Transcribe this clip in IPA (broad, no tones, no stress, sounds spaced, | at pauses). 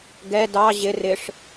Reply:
ɡ ɛ d ɑ ʑ ɪ r ɪ ʂ